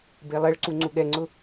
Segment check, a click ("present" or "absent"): present